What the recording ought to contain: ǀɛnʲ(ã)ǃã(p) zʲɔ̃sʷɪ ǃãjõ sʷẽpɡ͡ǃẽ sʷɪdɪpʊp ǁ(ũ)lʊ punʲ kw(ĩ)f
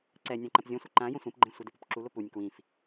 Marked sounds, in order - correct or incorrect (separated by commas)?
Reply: correct, correct, incorrect, correct